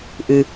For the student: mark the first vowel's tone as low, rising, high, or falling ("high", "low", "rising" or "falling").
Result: low